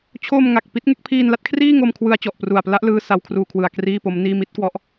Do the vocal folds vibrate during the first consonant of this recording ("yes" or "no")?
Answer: no